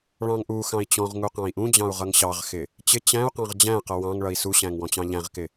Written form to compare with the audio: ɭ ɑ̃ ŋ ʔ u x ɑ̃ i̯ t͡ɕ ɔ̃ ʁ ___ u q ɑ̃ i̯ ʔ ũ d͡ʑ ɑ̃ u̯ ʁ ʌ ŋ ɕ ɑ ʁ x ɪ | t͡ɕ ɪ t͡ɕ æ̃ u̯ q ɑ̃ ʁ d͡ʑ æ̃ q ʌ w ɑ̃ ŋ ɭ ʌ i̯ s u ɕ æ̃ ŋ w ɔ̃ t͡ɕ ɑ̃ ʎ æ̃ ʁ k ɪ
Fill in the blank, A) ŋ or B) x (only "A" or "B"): A